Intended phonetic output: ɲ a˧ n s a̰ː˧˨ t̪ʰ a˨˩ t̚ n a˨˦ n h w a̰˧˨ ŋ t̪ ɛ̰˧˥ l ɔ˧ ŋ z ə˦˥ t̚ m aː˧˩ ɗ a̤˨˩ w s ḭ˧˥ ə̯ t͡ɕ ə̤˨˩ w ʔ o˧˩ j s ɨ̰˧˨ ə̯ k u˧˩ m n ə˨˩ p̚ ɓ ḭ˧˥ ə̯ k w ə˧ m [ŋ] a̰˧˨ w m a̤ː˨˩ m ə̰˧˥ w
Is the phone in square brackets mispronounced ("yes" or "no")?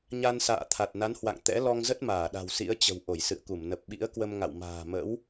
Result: no